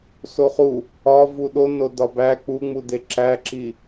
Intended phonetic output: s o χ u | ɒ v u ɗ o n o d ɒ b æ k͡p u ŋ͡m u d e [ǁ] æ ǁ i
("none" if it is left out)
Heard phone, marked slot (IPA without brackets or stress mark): ǁ